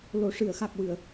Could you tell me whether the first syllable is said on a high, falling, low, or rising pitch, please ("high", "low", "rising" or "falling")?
low